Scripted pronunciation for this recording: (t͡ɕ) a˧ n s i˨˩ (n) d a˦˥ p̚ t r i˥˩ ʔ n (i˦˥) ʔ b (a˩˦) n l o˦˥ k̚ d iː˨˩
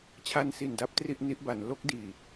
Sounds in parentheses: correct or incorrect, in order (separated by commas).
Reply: incorrect, correct, correct, correct